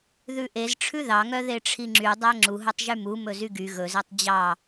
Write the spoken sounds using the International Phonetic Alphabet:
ðʉʔez ʈ͡ʂʰʉðɑŋœ ðeʈ͡ʂʰiŋ͡ǁy dˤæŋ͡ǁuɦɵtˤ ʒymu mɵzyɡy ɣɵzɛtˤ d͡ʑɑ

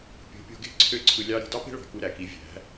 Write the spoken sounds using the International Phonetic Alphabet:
pʲo̤˨˦pʲo̤˧ɡe̤˦ ǀʰø˦ǀʰɯ˧lʲɑ˦ ɾi̤˧dɑ˦pe̤˦ɭɑ̤˨ ku˧ɾæ˨ki˨˦ vʲæ̤˨˦

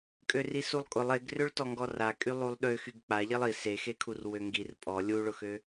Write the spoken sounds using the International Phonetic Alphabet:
kʼørisulˠkʼʊlˠ eɡrøɭtɔŋɡɔ rakʼy lˠulˠɗø xyɡk͡paʎelˠ i sexekʰur wøŋɡir pʼɔ lʲuɭʊxø

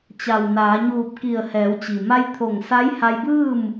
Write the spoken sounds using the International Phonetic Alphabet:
t͡ɕa˩w naː˩˧ɲuː˧˩p̚ ki˧˩ə̯hɛː˩˧wt͡ɕi˩ ma˧jt̪ʰo˧˩ŋ sa˧˥jha˧jbɯː˥˨m

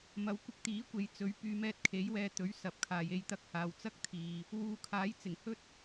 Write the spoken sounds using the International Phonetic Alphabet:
mɐ˨˥wkʷɪ˧k̚ t̪iː˨˥kʷe˨j t͡sɵ˨˥ɥ pyː˨˧mɛː˧t̚kʰe˨˥jwɛː˧ t̪ɵ˨˥ɥsɐ˨˥p̚kʰaː˨j e˧jt̪ɐ˧k̚haː˨w t͡sɐ˥k̚t̪ʰiː˨ | wuː˨˧kʰaː˨˥jt͡sɪ˨˩ŋ hɵ˥t̚

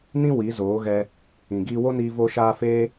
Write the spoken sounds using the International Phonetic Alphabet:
nĩ˦ wi˨˦zoː˨˦ɣɛ˧ | ĩ˨ɡiː˧wo˦niː˧ vo˧ʃaː˧ feː˦

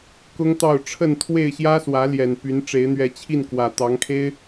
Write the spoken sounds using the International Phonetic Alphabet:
kʊ˦ŋt̪ɑ˥˨ʊ̯ ʈ͡ʂʰə˥˨n t̪ʰwe˥˨ɪ̯ɕjä˦ swä˨˦ ljɛ˨˩npy˨˦n ʈ͡ʂe˨˦ɪ̯n̪ɥɛ˨˦t͡ɕʰi˥˨nkwä˨˩ t̪ɑ˨˦ŋkʰe˦ɪ̯

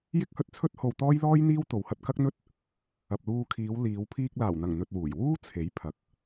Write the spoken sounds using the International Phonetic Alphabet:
jɪ˥k̚hɵ˧t̚t͡sʰɵ˥t̚ho˧w t̪ɔː˥jlɔː˥jn̪iː˥w t̪o˨whɐ˧t̚kɐ˥k̚n̪ɵ˥t̚ | ɐ˨p̚luː˧kʰiː˨˧w liː˨˧w pʰiː˧k̚laː˨˩wn̪ɐ˨˩ŋ n̪ɵ˧t̚wuː˨˩j wuː˥ t͡sʰe˨˥j pʰɐ˨k̚

